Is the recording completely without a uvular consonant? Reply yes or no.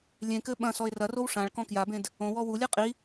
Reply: no